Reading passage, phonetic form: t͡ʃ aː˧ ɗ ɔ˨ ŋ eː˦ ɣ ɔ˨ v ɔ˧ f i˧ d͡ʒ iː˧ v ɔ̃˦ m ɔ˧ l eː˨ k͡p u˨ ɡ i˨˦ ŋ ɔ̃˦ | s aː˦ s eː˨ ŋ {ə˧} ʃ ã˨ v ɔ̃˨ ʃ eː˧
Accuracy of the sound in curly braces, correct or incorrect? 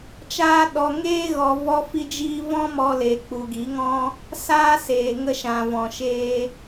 correct